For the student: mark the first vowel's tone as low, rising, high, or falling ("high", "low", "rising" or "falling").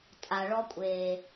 low